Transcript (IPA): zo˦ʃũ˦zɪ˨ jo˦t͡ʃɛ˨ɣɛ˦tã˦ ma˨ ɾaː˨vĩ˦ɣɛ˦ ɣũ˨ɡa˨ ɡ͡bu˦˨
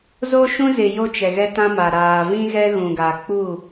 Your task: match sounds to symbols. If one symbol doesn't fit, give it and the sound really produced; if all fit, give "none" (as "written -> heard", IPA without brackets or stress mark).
ɡ͡b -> k͡p